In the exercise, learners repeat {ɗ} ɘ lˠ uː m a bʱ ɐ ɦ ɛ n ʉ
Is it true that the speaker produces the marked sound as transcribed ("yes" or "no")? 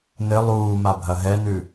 no